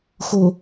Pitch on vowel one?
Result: low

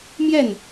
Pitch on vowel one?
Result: falling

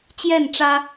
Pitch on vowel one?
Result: falling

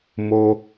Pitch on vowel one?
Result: high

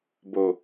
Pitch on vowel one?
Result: low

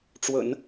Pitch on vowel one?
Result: low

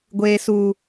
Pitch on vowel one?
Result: low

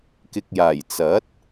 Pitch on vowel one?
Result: low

